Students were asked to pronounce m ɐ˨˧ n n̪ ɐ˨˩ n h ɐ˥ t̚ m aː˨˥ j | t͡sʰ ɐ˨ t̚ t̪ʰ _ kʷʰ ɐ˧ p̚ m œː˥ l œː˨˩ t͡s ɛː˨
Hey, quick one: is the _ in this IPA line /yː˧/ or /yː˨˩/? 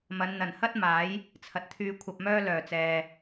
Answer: yː˧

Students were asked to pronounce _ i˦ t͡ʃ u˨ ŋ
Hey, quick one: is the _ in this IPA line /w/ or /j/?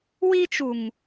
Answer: w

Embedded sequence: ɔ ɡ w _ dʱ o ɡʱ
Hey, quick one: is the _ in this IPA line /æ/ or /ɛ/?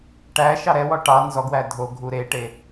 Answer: æ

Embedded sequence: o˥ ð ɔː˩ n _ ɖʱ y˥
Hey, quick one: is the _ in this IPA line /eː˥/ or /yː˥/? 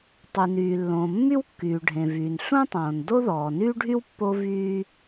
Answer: yː˥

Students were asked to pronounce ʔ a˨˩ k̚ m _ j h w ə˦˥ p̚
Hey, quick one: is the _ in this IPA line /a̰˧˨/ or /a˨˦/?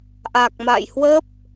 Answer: a̰˧˨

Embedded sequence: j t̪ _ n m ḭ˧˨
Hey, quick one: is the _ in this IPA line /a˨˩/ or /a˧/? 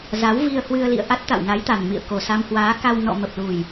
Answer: a˨˩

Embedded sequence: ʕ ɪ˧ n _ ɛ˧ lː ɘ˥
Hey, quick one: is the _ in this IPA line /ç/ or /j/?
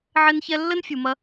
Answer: ç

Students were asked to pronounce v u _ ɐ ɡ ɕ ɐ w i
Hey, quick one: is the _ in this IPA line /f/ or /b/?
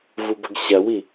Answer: b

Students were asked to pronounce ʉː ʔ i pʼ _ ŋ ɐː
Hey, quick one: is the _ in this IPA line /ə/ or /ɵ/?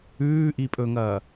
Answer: ɵ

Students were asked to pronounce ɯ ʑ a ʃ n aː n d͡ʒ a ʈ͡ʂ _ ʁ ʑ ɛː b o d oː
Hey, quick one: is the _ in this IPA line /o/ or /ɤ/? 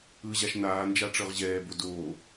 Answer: ɤ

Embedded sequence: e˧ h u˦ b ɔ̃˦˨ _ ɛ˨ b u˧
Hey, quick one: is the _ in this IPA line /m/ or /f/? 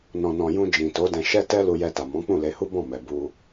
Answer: m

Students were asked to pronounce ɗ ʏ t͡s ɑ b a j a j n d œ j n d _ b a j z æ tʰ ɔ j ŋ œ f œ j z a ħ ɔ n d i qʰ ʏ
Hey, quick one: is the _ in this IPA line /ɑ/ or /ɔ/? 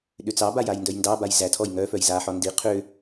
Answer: ɑ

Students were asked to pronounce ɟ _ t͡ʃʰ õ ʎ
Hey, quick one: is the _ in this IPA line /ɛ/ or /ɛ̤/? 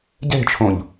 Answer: ɛ̤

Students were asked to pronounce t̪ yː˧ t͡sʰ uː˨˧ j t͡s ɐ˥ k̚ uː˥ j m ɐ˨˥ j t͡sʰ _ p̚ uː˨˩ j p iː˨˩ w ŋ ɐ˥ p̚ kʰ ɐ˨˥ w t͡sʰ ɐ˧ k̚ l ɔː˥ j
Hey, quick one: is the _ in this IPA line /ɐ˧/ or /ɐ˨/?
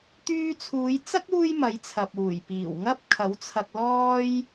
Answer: ɐ˨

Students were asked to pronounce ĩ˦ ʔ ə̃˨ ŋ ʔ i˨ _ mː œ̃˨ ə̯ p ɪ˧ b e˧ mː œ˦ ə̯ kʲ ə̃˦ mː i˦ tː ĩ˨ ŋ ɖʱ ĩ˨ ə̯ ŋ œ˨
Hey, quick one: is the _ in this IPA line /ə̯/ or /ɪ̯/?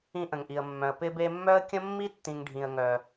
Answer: ə̯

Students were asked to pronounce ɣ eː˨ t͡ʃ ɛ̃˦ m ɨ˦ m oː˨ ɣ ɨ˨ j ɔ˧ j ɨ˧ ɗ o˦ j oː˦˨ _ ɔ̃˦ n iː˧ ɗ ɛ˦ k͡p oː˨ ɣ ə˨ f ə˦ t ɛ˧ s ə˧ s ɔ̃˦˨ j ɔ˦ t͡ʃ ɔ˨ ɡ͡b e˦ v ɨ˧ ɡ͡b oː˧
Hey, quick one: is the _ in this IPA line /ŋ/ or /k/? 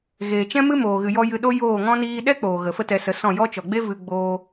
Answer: ŋ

